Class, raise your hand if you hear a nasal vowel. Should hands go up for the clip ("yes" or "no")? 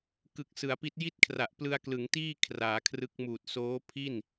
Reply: no